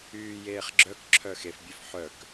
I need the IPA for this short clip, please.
yːjeːχɡ͡ǁœkǁʰœ xefbʲøf ħœk

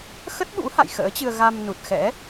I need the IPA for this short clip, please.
xə˦˥t̚ɓṵ˧˥ ha̰˧˨jxə̰ː˧˥t͡ɕɨ˧ə̯ ɣa˧mnu˨˩t̚xɛ̰˧˥

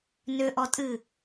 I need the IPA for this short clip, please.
nʏʔɔtʼɨ

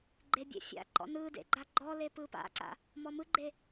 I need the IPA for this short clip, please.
ɡ͡ǃebʲḛfʲa̰ ǃɔ̰nɯdḛ ɡ͡ǃaɡ͡ǃɔle pɯpa̰ǀa̰ | mɔmɯɡ͡ǃe

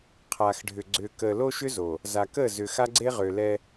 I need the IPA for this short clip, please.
qʰaː˨xɖʱʏ˨ ɡ͡ǀʏː˨kəː˨lo˦ʃʏ˦ zo˨ | za˨kəː˦˨zʏ˨ xa˦ɡ͡ǀe˦ ʁʏː˨lɛ˦

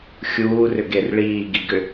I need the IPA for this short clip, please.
xʲuːrʏɡer ɭiːɡiɡʏ

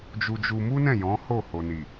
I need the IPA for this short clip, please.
d͡ʒu˧d͡ʒu˧ mu˦nɛ̃˦˨ jɔ̃˨˦ho˦˨ho˨ ni˨

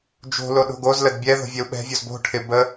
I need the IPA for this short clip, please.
d͡ʒo̤lo ɗo̤ɡozləd bʲɛ ðo̤vʲɛu̯ɓɛ̤vʲoz bo̤ ʈʰɪ bə

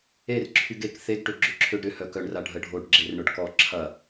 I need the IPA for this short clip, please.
erǁʰyɡ ek θeɡʈø ɡ͡ǁʏǁʰøɖɾʏ hœkœɳra ɖʱəɖʱoɖ ɡ͡ǁerɳʊɖ kɔ ǁʰɐ

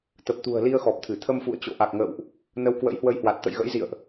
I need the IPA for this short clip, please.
t̪ə˨˩p̚t̪ṳ˨˩ə̯li˧ə̯ xɔ˨˩p̚t̪ʰɨ˧˩ t̪ʰə˧mfṵ˧˨ə̯ t͡ɕo̰˧˨ʔa˨˩k̚ŋə̰ː˧˨wʔ | nə˧wkwə̰˧˥jhwə˧jhwa˨˩t̚ t̪ə̰˧˨jɣə̰˧˥jzḭ˧˨ə̯ʔ

